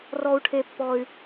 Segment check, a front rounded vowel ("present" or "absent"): present